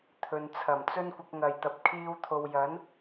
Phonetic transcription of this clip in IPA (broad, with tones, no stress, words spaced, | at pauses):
t̪ʰɵ˨nt͡sʰɐ˨˩mt͡sɵ˥n kʷɐ˧k̚ŋɐ˨jt̪ɐ˨˥p̚ kʰiː˧w t̪ʰo˨wjɐ˨˥n